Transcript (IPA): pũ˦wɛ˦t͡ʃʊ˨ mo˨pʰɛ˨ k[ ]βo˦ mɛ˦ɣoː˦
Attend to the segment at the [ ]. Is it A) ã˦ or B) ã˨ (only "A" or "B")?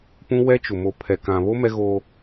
B